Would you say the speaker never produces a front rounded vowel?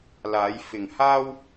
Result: yes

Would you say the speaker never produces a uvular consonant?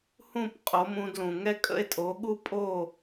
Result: no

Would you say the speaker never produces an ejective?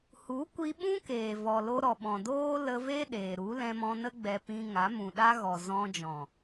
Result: yes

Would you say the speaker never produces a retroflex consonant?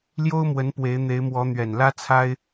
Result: yes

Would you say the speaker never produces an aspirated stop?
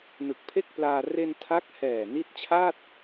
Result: no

